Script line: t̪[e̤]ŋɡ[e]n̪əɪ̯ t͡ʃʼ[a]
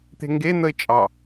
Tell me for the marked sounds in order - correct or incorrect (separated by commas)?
correct, correct, incorrect